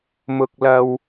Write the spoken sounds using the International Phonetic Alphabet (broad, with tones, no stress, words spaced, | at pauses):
mʊ˧k̚lɐ˧w